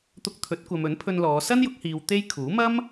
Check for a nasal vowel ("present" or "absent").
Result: absent